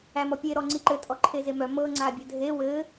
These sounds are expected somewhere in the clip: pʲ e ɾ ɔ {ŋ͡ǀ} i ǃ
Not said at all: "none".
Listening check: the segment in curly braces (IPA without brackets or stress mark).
ŋ͡ǀ